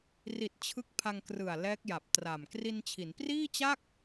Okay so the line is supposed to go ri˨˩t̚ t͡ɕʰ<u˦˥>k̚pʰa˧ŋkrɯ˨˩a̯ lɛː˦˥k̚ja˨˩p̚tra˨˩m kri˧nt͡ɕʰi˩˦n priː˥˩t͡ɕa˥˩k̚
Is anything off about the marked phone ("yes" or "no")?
yes